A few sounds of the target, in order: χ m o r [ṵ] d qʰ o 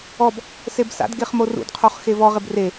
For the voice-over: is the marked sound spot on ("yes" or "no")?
yes